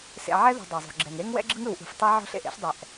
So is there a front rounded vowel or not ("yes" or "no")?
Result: no